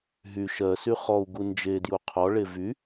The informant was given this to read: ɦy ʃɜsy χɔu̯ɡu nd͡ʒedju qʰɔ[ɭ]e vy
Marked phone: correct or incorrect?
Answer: correct